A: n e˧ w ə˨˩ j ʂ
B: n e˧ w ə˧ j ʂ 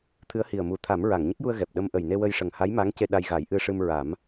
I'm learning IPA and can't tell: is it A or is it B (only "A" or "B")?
B